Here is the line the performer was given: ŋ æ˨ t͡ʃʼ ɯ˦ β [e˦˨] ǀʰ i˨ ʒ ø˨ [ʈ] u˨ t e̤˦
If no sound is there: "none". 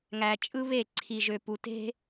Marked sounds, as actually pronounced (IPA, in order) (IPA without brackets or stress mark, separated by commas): e˦˨, p